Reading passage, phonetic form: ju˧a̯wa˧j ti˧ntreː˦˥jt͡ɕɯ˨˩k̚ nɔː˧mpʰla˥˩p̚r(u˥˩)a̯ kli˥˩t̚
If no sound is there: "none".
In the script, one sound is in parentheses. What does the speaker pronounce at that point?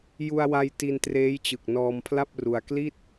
u˧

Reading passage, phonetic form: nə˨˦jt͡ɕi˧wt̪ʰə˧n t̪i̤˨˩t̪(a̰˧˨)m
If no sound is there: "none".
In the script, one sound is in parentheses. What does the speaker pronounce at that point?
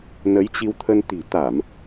a˧˩˨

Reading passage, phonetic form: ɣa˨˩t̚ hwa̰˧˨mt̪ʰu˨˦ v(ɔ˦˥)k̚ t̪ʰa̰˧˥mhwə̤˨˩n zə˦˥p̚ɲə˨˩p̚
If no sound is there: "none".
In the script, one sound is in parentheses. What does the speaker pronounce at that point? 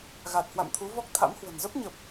ɔ˦˥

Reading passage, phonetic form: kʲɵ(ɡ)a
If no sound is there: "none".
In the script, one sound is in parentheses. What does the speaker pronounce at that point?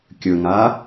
ŋ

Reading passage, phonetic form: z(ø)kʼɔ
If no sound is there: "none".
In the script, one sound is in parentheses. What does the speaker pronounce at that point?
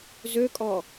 ø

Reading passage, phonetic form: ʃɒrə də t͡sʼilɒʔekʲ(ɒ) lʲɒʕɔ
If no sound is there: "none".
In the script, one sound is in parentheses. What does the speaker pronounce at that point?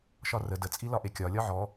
ɒ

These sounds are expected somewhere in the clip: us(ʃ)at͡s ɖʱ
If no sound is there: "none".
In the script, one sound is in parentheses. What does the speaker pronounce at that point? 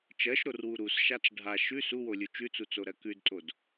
ʃ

